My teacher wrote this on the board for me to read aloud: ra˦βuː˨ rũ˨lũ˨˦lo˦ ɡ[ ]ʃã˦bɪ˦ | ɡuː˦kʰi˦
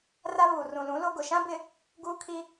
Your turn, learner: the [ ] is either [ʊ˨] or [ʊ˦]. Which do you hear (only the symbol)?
ʊ˨